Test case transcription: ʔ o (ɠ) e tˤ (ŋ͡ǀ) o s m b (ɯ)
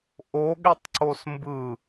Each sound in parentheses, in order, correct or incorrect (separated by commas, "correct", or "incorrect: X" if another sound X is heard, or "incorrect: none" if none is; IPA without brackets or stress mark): correct, incorrect: ǀ, correct